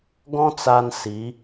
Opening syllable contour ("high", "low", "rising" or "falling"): high